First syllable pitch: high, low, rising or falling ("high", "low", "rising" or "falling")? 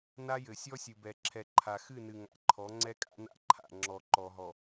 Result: high